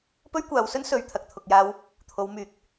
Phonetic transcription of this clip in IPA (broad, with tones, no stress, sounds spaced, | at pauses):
p ɵ˥ ɥ kʷ aː˨˧ w s ɵ˥ n s ɵ˧ ɥ t̪ʰ ɐ˨ k̚ t̪ʰ ʊ˨ k̚ j aː˧ w | t̪ʰ o˨˧ w m yː˨˥ k̚